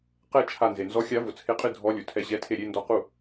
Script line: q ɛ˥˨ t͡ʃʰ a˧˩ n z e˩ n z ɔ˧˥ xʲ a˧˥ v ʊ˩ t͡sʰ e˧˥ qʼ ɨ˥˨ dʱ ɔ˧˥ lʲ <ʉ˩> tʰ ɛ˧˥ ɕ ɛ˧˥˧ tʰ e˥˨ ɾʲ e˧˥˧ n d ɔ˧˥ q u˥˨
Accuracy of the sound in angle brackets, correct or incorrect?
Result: incorrect: u˩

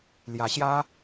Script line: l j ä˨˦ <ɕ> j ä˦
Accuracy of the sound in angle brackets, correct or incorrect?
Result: correct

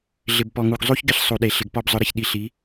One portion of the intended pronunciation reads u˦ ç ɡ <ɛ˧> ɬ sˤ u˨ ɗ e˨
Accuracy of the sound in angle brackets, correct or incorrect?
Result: incorrect: ɪ˧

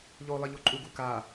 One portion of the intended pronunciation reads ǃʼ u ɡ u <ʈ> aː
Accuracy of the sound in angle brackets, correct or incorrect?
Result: incorrect: k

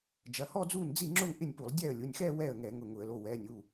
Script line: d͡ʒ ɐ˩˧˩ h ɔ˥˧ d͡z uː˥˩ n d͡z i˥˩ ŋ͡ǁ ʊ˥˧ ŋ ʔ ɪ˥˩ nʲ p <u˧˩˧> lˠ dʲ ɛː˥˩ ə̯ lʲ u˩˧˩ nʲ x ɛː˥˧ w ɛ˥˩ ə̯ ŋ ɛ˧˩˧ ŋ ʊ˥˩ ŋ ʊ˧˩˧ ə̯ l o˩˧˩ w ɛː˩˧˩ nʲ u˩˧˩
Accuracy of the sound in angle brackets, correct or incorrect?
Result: correct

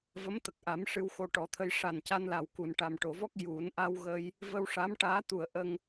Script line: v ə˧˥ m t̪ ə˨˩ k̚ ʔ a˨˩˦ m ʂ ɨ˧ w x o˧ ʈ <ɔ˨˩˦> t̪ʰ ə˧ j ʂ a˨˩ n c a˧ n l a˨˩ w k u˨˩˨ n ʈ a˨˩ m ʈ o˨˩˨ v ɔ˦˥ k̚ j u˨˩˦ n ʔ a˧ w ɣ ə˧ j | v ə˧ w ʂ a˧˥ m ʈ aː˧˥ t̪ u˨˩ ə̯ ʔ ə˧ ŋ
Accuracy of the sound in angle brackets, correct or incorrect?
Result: correct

